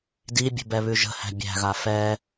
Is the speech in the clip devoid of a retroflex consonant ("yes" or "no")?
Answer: yes